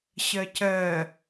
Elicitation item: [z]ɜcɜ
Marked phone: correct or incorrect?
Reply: incorrect